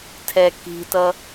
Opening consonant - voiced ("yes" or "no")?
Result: no